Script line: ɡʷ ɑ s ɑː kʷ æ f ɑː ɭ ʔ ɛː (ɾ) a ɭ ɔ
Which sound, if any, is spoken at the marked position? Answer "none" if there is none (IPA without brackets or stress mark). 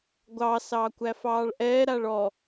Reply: ɾ